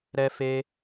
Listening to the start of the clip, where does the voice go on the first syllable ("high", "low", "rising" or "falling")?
high